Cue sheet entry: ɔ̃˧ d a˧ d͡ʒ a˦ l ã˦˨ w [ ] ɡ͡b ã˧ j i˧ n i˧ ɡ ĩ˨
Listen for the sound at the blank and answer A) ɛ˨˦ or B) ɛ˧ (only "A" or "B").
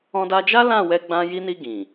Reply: B